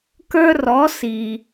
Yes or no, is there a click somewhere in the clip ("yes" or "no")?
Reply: no